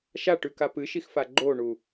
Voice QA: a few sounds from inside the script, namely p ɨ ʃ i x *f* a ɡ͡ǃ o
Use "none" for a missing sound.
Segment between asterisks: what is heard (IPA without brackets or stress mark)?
f